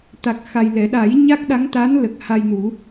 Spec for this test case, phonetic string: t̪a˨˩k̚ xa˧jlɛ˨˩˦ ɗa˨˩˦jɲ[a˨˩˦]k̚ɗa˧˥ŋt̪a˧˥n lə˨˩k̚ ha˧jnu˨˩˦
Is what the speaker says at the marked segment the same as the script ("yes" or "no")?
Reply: no